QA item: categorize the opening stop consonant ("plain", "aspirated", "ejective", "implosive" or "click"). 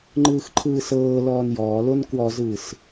click